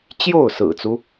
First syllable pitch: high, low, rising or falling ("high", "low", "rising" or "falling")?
falling